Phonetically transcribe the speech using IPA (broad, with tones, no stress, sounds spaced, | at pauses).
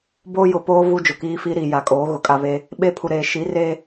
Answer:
b oː˦ j ʊ˨ p oː˦ v u˦ d͡ʒ ʊ˨ k iː˦ f iː˦ ɾ iː˨ j a˨ kʼ oː˨˦ ɣ ʊ˨ kʼ a˦ β e˦ | ɓ e˦ pʰ u˨ ɾ eː˨ ʃ i˨˦ r e˦